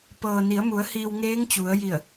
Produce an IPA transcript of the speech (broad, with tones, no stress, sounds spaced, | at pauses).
p ɤː˩ n i˩˧ ə̯ m u˩˧ ə̯ h iː˧ w ŋ eː˧˥ ŋ t͡ɕ u˩˧ ə̯ j i˧˩ ə̯